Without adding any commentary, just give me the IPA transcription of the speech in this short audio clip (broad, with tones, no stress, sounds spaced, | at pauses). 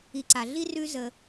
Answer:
i˩ ǀ a˩ ɮ i˥ r ʉ˧ z ə˩